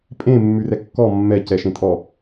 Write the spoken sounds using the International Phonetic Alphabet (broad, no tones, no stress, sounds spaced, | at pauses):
pʼ ẽ mː ʉ r ɛ kː ɔ mː ɛ c ɛ ʃ ẽ tʼ ɔ